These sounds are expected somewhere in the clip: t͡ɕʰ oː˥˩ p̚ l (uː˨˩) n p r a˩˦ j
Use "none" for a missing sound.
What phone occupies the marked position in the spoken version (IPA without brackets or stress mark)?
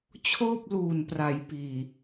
uː˨˩